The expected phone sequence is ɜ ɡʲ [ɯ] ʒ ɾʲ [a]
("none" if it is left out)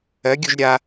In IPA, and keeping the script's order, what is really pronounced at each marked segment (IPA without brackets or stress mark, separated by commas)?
u, a